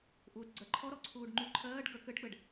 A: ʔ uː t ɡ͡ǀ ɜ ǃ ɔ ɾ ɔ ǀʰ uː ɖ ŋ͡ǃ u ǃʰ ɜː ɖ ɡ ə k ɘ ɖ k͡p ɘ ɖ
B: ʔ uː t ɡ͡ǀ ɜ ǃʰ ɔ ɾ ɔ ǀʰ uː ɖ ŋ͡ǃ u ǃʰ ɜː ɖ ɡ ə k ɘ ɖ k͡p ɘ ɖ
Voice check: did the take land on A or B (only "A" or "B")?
B